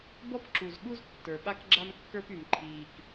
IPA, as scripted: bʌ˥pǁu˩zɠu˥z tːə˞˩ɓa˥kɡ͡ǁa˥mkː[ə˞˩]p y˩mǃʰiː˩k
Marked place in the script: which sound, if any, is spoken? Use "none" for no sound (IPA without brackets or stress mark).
ə˞˥